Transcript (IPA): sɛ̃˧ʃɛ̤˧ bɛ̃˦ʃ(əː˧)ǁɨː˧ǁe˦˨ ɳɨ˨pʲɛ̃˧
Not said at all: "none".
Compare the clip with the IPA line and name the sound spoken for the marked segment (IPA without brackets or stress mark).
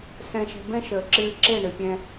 əː˨